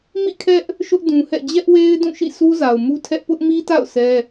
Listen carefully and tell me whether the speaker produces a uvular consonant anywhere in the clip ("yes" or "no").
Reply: no